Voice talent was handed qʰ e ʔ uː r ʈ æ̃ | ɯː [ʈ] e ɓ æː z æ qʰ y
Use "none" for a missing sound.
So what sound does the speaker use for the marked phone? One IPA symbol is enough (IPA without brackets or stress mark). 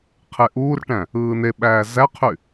n